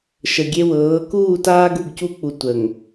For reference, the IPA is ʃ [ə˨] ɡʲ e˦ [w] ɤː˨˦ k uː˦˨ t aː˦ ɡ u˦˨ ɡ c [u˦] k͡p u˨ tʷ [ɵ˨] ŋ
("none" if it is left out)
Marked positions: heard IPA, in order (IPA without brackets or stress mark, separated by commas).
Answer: ə˨, w, u˦, ə˨